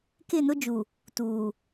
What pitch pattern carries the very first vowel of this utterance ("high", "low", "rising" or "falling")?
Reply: falling